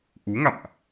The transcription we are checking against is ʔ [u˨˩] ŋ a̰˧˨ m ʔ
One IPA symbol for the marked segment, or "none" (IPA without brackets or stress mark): u˨˦